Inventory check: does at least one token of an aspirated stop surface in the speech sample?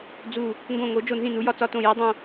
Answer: no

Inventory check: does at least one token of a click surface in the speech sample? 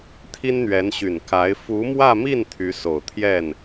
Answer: no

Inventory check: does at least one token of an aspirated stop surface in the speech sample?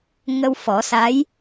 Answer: no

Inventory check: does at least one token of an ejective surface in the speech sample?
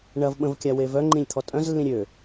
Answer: yes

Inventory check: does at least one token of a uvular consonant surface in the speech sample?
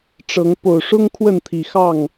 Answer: no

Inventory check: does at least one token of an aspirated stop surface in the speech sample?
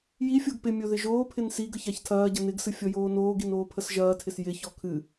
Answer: yes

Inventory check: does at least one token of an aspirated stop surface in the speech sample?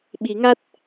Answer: no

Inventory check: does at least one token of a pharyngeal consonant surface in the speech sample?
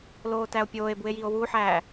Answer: yes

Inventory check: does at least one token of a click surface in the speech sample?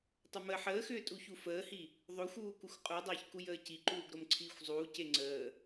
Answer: yes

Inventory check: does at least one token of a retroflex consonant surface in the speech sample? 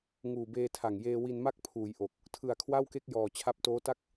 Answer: no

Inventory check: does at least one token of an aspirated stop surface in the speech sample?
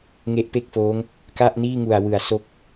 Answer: no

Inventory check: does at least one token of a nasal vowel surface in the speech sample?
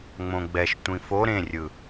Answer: yes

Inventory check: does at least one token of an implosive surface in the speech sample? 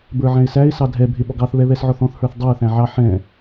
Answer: yes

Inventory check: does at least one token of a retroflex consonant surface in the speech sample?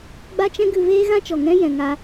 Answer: no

